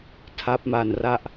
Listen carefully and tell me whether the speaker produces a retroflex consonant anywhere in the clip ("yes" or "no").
no